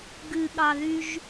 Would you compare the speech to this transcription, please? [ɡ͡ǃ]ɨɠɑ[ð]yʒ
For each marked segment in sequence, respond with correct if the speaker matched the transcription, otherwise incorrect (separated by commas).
incorrect, correct